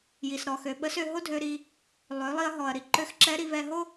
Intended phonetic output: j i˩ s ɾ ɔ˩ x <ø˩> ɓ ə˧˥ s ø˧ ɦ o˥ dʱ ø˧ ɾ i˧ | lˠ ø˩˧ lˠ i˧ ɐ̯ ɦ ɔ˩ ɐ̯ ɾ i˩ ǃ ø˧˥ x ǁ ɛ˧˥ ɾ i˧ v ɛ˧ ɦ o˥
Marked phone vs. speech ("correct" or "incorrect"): correct